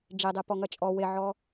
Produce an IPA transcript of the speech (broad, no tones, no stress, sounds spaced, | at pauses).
d͡ʒ e dˤ e p ɔ ŋ ɐ t͡ʃʼ ɔ w e ʕ ɔ